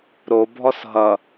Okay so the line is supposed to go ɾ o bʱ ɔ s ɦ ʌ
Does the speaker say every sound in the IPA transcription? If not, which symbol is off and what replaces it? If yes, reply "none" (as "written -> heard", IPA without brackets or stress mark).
none